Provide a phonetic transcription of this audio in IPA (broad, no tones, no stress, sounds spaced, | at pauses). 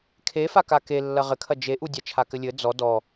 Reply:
kʰ e f a k a k e lː ɐ ʁ ɘ kʰ ɐ d͡ʒ e ʔ u dʲ a t͡ʃʰ a k ɘ lʲ ɘ d͡z ɔ d ɔ